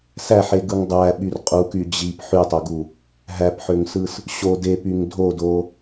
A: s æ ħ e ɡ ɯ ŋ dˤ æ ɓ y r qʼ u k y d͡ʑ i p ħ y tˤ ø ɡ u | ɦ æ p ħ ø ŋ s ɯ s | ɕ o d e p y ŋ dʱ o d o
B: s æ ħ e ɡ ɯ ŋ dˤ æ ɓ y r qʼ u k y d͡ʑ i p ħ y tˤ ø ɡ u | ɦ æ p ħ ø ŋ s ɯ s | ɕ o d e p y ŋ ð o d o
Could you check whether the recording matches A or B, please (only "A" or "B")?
A